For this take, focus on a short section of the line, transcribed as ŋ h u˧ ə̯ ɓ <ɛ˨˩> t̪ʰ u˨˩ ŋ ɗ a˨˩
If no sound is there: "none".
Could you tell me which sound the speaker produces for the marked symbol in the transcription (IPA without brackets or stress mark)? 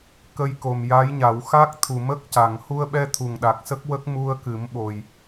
ɛ˧